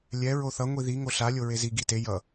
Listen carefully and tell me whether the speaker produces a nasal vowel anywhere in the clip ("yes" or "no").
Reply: no